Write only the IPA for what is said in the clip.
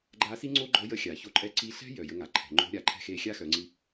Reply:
ɡ͡ǃa˧˥si˥ŋ͡ǀo˥ɡ͡ǃɔ˧˥ jə˧˥xʲa˩ ço˧ǃʼɛ˧˥ ǀi˧ɬɛ̤˥ jœ˩ jə˧˥ŋa˩˧ǃʰɛ̤˩˧ ŋ͡ǃo̤˧˥ɾʲa˩˧ ǃʰɛ̤˧xe˧ xʲa˥xœ˩˧ŋ͡ǀi˧

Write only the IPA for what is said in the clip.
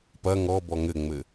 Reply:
pɐ ŋɔbɔ ŋɘŋ͡mɘ

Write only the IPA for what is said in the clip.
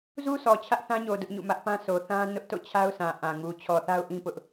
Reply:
zu˦sʰɔ˨ t͡ɕʰä˦ʔθã˦ɲo˨ dʊ˦ʔɲṵ˦˨mä˦ʔ pã˦so˨ θã˦ nʊ˦ʔto̰˦˨t͡ɕʰa˦ʊ̯sã˨ ʔã˨ŋu˨ t͡ɕʰɔ˨θa˦ʊ̯ʔĩ˦ pʊ˦ʔ

